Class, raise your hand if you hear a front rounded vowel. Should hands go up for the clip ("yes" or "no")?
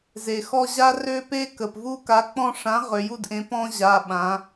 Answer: yes